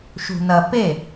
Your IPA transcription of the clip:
ʃ ṳ n ɐ p e

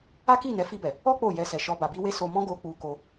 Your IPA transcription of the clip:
a˦ k i˦˨ n ɛ˨˦ f i˧ b ɛ˨ | ɔ˦ k͡p o˦˨ j ɛ˧ s ɛ˨ ʃ ɔ˧ b a˨ b i˧ w e˧ s o˦ m ɔ̃˦ ɡ o˧ k͡p u˧ k o˧

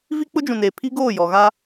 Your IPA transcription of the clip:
v i˦ k͡p ʊ˦ d͡ʒ ũ˨ n eː˨ pʰ i˦ ɡ oː˦˨ j ɔ˨ ɣ a˦

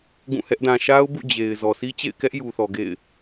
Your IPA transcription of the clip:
ɡ ũ˦˨ h ɛ˦ ʔ d ã˨ ʃ a˦ ʊ̯ b ṵ˦˨ d͡ʑ e˨ ɪ̯ z ɔ˨ sʰ i˦ t͡ɕ ḛ˦˨ ɪ̯ k ɛ˦ ʔ j u˨ θ ɔ˨ ɡ ḛ˦˨ ɪ̯

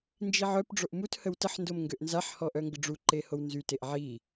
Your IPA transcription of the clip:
n d͡ʒ i ʕ œ p ɖ͡ʐ o ʔ m u t h ə w t ə ħ n d o m ŋ ɡ ø ʔ n z a ħ h ɔ ʔ œ ŋ ɡ ə ɖ͡ʐ u ǃ e h o w n z y t e ʔ ʕ i

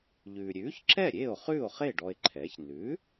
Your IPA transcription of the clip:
ʎ ʉː˩ ɾʲ ʉː˩˥ ç ǁ ɛ˥˩ ɾʲ eː˥˩ o̯ χ ʉː˥˩ o̯ χ e˥˩ ɖ ɔ˧ e̯ ǃʰ ɛː˩˥ ç n ʉ˩˥

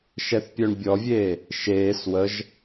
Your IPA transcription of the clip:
ʃ ɛ θ pʲ œ ɳ bʲ ɔ vʲ eː | ʃ eː s w ə ʒ

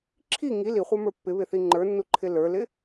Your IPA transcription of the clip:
ǁʰ i ŋ i l i χʷ ə˞ m ə˞ pː ɪ β ɪ θ i ŋ͡ǃ ə˞ nː u ǃʰ ɪ l ə˞ l ɪ

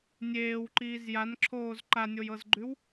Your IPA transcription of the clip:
nʲ eː w ǃ iː z j a n ǁʰ oː z ǃ a nʲ o j ɤ z ɡ͡ǃ ʉ w

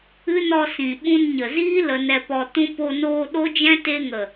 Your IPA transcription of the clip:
ɨ˦ n ɔ˧ s ĩ˨ ɓ ũ˧ n ɲ ə˨ z iː˦ l ə˧ n ɛ˧ p ɔ˧ t ũ˧ p o˧ n oː˧ ɗ o˦ d͡ʒ ɛ̃˦ t e˧ ŋ ə˨

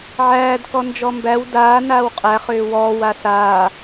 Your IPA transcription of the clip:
ʕ æː d k ɔ n d͡ʒ ɔ m b æ w d aː n aː w qʼ æ χ ʏː w ɔː w a s aː

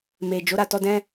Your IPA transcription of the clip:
m e˨ d͡ʒ o˨˦ ɾ a˦˨ t ɔ˧ d ɛ̃˧

